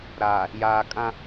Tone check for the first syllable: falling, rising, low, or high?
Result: low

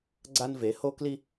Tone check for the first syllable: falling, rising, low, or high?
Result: high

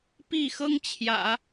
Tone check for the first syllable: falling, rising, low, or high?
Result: falling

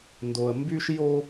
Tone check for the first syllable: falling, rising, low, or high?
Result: high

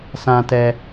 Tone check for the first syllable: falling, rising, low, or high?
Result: low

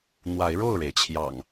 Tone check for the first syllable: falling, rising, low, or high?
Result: rising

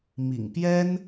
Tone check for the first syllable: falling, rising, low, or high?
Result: low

